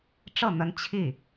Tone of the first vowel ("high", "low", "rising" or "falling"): falling